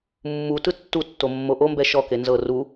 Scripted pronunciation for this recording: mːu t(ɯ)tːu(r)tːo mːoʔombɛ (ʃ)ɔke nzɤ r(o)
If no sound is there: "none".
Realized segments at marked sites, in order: ɯ, none, ʃ, u

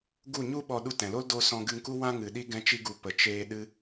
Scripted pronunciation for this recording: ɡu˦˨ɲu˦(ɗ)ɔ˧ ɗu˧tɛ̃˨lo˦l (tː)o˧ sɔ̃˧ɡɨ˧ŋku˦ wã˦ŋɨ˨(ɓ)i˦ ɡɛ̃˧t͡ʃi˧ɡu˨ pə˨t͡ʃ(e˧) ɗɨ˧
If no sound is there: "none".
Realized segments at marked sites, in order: ɓ, d, ɗ, eː˧

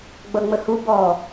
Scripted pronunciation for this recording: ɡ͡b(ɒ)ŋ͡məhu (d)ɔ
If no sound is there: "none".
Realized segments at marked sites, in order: ʌ, b

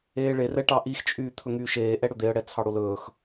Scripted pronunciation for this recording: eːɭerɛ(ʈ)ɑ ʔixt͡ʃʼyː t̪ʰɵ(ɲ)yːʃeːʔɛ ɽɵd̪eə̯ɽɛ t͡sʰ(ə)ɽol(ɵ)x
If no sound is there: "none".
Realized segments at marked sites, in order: ʈ, ŋ, ɑ, ɵː

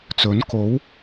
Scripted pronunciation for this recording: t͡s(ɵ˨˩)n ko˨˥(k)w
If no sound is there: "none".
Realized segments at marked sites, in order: ɵ˨˥, none

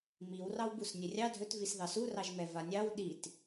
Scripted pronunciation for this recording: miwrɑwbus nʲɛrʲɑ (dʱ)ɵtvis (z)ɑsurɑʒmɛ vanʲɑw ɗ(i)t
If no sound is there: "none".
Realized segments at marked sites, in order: dʱ, ð, i

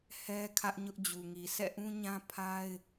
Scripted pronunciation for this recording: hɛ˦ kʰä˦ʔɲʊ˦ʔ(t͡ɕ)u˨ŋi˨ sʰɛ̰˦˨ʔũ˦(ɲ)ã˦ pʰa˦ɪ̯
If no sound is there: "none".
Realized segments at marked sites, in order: d͡ʑ, ɲ

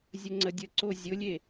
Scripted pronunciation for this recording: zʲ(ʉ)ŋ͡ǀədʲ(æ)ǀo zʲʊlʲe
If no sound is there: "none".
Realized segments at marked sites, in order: ə, ə

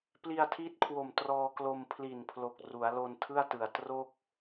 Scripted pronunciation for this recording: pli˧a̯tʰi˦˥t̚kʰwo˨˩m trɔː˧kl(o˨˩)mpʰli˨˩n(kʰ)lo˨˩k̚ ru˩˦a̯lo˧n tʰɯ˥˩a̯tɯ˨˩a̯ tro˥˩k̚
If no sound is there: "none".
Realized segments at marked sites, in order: o˧, pʰ

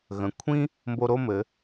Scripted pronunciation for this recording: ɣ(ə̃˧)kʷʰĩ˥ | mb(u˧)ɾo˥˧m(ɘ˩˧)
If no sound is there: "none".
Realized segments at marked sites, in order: ə̃˩˧, o˧, ɘ˩˧

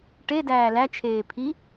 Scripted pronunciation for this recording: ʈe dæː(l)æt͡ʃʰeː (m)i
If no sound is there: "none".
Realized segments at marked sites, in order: l, pʰ

